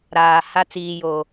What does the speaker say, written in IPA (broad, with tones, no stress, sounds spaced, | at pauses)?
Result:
ɾ aː˨ h a˦ t͡s iː˨ j o˨